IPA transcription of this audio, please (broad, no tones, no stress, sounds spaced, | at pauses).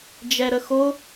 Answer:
d͡ʒ ɛ ɾ ə x o